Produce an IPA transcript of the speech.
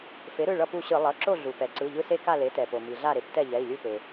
f e˩˥ ɾ ɯ˩˧˩ ɭ ʌ˦˨ p u˦˨ ɕ ɯ˧˩˧ lˠ ʌ˩˧˩ ǁ o˦˨ ɮ u˩ p ɛ˩ ǀ ɯ˩˧˩ ʎ ɯ˦ s e˦ k a˦˨ l e˩˥ t ɛ˩ p o˩ m i˩ ɮ a˦˨ ɾ e˩˥ p t ɛ˦˨ ʎ ɛ˩˧˩ i̯ lʲ u˦˨ p e˩

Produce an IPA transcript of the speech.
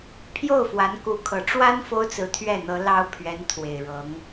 pʰ j o˥˩ ʊ̯ f w a˧˥ n k u˧˥ kʰ ɤ˨˩ ʈ͡ʂ w a˥ n f o˥ ʊ̯ t͡s ɹ̩˧˥ t̪ʰ ɥ ɛ˥˩ n̪ ɤ˧˥ l ɑ˥ ʊ̯ pʰ ɥ ɛ˧˥ n t̪ʰ w e˨˩ ɪ̯ ɻ ɤ˧˥ ŋ

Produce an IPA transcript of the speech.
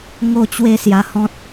ŋ o˥˧ t͡ɕ w e˥˧ s j a˧ h ɔ̃˦ t̚

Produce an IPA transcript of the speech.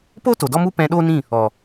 p o˦ t o˨ d ɔ˦ m u˦ p ɛ̃˧ ɗ o˦ n ĩ˦˨ | ɔ˨

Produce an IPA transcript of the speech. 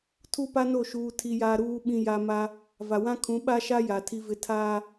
tʰ u˦ p a˦ n o˦˨ ʃ uː˦ tʰ i˦ j a˦ ɾ uː˦ ɓ ĩ˦ j a˦ m a˦ | v a˨ w ã˦ kʰ ũ˨˦ ɓ a˦ ʃ a˦ j a˨ tʰ i˦ v ɪ˦ tʰ aː˦

